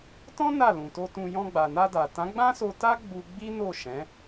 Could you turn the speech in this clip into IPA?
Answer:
t ɔ̃˦ n a˦˨ l ũ˨ t o˧ t ũ˧ j ɔ̃˧ ɡ͡b a˨ n a˧ d a˨ t ã˨˦ ɡ͡b ã˦ s o˧ t a˦ ɡ͡b u˧ ɡ͡b i˦ n o˦˨ ʃ ɛ̃˨˦

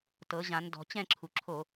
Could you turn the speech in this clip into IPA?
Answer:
t ɤ˨˥ ʑ ã˨˥ n d ɔ̤˩˧ t͡ɕ ɛ̃˥˨ ǁʰ u˩˧ ǁʰ o˧˩˧

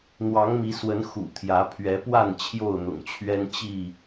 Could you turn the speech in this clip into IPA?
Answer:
n̪ w ɑ˨˦ ŋ m i˨˦ s w ə˨˦ n x ṵ˨˩ t̪ʰ j ä˨˦ pʰ ɥ ɛ˨˦ p w a˥˨ n t͡ɕʰ j o˥˨ ʊ̯ n̪ ʊ̰˨˩ ŋ t͡ɕʰ ɥ ɛ˦ n t͡ɕ i˥˨

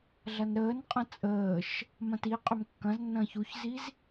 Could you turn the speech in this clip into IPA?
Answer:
ɮ ɐ n ɾ əː n qʼ ɐ̃ t͡sʼ əː ʃ | m ɐ̃ t i qʼ ʏ m kː ɐ̃ z nː ɐ̃ː ç u ç z i z

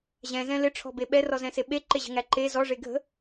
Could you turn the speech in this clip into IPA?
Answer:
ʑ ɛ̃ z ɛ̃ l ɪ ʈ͡ʂʰ ɔ̤ b e ɓ ɛ r ɔ z ɛ̃ s e ɓ e ǃ e ʑ ə̤ ŋ æ ǃ e z ɔ ʐ e ɡʱ ə̤

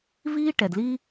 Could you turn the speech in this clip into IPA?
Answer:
v iː˦ ʈ ɛ˨ d l iː˦

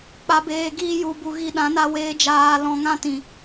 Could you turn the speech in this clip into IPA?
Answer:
k͡p a˧ b eː˧ ɡ iː˦ j u˧ b u˧ ɣ i˧ ɗ ã˨˦ n a˧ w eː˧ d͡ʒ aː˧ l ɔ̃˧ ŋ ã˦˨ t ĩ˨

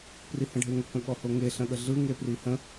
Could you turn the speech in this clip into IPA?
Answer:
p r i h ə̃ ɖʱ e ŋ ə k ə̃ ɠ ɔ h o ŋ e ɬ ə̃ ɠ ə ɮ ɯ ŋ e p r i h ə̃

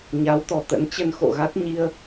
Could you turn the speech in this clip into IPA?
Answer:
ɲ a˨˦ w t̪ ɔ˨˩ t̪ ə̰˧˥ n t͡ɕ ə˧ n x o̰˧˨ ɣ a˦˥ t̚ ɲ i˧ ə̯

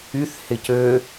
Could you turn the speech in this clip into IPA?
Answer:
y θ h ɪ c ø

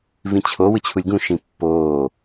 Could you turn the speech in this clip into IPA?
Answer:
v ĩ t͡ɕʰ o w ɯ t͡ɕʰ u lʲ ɡ ũ ʃ ĩ pː oː

